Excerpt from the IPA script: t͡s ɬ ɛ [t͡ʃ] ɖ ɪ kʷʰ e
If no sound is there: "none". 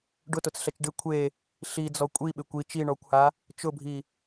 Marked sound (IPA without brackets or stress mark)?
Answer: t͡ʃ